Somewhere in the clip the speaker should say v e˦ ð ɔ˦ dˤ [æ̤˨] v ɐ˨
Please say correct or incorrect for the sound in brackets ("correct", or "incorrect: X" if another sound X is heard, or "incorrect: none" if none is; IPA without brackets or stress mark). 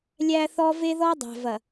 correct